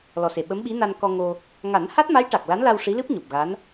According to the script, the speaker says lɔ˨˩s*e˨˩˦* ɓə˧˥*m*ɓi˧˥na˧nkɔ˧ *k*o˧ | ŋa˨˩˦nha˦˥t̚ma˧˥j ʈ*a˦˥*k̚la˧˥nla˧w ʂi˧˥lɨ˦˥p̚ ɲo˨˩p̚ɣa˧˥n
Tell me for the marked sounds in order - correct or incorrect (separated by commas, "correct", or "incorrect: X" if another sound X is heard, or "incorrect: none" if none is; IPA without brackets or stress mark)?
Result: incorrect: e˨˩, correct, incorrect: ŋ, incorrect: a˨˩